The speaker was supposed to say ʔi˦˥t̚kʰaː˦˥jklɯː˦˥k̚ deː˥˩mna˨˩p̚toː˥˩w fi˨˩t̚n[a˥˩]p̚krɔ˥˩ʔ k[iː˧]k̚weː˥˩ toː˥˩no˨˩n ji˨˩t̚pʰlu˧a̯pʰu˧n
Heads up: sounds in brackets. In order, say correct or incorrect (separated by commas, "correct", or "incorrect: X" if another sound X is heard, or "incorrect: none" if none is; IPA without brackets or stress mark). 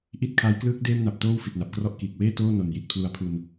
incorrect: a˨˩, incorrect: iː˨˩